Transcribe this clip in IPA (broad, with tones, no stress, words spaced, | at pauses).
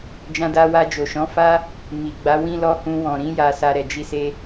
d͡ʒã˧da˧wa˧ d͡ʒo˨ʃɔ̃˨˦ fa˧ | mi˨ɡ͡ba˨˦ wĩ˧lɔ˧ hũ˧wɔ̃˨ɾĩ˨˦ ja˧sa˧ ɾɛ˨d͡ʒi˧se˧